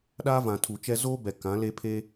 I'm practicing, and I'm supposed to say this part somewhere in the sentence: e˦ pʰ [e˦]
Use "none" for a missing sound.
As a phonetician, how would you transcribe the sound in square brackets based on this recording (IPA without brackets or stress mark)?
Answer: e˦